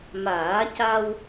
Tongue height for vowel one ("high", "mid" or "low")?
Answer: low